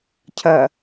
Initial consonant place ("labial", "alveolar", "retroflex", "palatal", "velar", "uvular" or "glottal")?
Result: palatal